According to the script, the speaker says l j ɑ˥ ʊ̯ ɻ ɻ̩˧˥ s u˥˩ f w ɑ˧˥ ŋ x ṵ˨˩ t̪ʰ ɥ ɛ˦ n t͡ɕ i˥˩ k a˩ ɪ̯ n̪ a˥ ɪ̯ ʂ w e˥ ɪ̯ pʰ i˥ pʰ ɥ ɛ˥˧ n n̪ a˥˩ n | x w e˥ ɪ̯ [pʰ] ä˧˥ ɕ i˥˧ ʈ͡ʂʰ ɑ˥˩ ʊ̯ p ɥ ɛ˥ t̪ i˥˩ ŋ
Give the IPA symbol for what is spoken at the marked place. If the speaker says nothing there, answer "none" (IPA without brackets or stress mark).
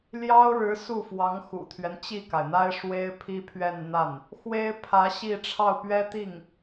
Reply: pʰ